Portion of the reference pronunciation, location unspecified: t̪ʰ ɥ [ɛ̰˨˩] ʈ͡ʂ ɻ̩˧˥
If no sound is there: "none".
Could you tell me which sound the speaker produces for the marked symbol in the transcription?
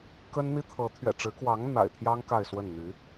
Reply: ɛ̰˨˩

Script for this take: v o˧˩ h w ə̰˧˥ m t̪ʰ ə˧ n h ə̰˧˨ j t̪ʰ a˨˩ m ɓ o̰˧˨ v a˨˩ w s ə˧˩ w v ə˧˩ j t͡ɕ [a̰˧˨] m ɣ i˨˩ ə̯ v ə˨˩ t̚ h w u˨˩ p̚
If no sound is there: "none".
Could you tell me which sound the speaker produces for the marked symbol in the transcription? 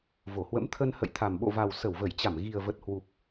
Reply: a˧˩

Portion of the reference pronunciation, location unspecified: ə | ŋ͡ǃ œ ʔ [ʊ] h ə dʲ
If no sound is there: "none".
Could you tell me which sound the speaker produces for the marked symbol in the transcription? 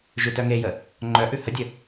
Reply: ʉ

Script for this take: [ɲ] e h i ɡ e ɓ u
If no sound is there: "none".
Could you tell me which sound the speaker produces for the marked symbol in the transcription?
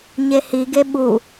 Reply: ɲ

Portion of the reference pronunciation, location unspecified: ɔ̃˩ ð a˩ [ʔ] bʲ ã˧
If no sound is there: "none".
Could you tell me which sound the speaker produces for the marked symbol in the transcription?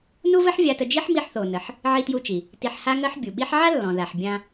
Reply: ħ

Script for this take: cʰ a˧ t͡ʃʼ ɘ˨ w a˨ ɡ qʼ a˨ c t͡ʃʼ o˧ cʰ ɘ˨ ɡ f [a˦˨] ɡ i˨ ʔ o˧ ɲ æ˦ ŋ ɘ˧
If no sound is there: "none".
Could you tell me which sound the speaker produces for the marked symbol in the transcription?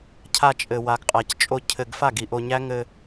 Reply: a˦˨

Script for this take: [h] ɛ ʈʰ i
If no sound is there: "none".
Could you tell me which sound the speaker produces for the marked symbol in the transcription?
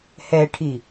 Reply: h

